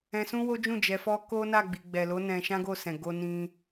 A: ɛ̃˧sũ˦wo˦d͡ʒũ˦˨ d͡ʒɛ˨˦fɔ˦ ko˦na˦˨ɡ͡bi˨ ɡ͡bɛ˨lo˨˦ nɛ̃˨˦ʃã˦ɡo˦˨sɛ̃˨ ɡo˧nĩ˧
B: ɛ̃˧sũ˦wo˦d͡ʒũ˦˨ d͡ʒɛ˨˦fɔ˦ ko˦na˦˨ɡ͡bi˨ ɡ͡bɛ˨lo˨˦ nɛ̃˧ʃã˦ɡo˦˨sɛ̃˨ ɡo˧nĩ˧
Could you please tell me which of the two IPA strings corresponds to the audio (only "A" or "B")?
B